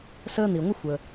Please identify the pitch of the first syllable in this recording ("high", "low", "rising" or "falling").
high